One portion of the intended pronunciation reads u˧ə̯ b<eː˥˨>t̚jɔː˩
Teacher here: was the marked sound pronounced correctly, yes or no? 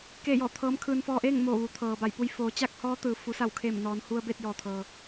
no